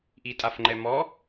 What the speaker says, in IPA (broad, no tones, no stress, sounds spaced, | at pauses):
ʔ i tʼ a f ŋ͡ǃ ɛ m ɔ